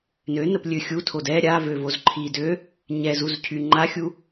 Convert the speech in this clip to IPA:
n ø n ə p lʲ ø xʲ u tʰ o d ɛ ɾʲ a v ø v o z ǃʰ i d ø | ɲ ɛ z u z cʰ y ŋ͡ǃ a xʲ u

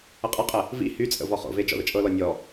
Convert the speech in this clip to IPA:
ə qʼ ə qʼ ə | v ḭ h y t͡sʼ ə̰ v ɔ χ o̰ v e d͡ʒ ɔ̰ ð ə̰ t͡ʃʼ ɤ l ɔ nʲ ɔ

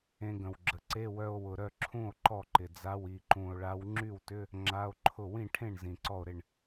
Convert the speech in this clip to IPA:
ẽ˧ ɡ ə̃˨˩ w ɡ͡ǁ ə˨˩ ǀ e˧˥˧ w œ˧ o̯ w ʊ˨˩ ɾ œ˥˩ ǁʰ ũ˥˩ o̯ ǃ ɔ˥˩ ǃ ɪ˨˩ d͡z a˧˥˧ w i˨˩ ǃ ũ˨˩ o̯ ɭ a˧˥ w ŋ͡ǁ y˥˩ w t ʏ˧˥˧ | ŋ͡ǁ a˧˥˧ o̯ ǃʰ ʊ˥˩ w ĩ˥˩ ʈʰ ẽ˥˩ ɳ z ĩ˨˩ ǀ ɔ˥˩ o̯ ɾ ɪ˥˩ ɳ

